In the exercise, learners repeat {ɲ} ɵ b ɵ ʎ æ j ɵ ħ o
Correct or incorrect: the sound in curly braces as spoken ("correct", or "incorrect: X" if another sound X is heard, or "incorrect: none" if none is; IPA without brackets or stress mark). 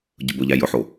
incorrect: ɟ